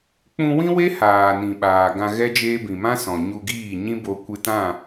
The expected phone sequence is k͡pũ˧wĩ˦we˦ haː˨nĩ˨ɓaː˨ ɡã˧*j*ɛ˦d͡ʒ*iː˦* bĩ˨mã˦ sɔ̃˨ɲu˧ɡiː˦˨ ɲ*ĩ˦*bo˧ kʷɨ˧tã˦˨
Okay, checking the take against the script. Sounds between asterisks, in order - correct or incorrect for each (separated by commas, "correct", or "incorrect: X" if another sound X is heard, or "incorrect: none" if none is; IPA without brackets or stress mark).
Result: incorrect: ɣ, incorrect: eː˦, correct